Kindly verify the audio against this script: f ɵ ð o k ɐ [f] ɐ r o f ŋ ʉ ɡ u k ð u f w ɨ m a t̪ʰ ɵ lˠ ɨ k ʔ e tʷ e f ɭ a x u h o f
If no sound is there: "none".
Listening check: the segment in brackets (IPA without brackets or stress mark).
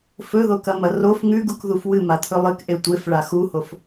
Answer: m